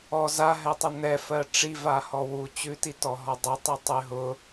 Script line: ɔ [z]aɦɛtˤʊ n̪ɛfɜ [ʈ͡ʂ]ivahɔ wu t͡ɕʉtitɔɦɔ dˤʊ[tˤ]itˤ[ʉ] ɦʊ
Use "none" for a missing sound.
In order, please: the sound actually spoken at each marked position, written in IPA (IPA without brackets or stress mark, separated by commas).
z, ʈ͡ʂ, tˤ, ʉ